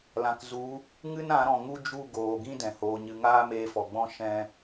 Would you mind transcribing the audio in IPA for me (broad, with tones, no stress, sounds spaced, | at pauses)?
l ã˨ k z u˨˦ | ŋ ɨ˦ n ã˨˦ ɾ ɔ̃˨ ŋ u˦ d͡ʒ u˦˨ ɡ oː˨ ɡ ĩ˦ d ɛ̃˨ h oː˧ ɲ ɨ˧ ŋ aː˦ m eː˧ f ɔ˨ ɡ͡b ɔ̃˦ ʃ ɛ̃˦